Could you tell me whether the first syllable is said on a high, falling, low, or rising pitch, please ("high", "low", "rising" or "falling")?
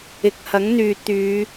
low